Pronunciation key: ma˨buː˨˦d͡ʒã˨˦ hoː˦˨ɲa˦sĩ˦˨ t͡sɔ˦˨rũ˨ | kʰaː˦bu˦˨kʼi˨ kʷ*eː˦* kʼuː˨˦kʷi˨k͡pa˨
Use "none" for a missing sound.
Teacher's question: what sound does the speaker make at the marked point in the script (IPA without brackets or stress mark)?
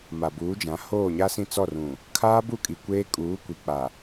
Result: eː˦